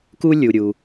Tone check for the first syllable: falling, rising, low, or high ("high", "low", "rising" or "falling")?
high